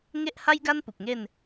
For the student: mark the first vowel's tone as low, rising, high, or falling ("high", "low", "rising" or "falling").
high